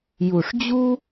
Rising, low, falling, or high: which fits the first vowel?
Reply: low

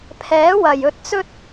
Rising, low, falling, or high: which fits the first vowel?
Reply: rising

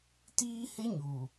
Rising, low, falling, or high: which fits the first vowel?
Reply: high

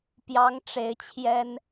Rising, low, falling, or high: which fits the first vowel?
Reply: rising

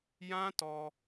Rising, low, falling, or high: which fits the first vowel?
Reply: high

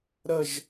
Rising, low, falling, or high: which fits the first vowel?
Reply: falling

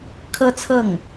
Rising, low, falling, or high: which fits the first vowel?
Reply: high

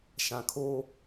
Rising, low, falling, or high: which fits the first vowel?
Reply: low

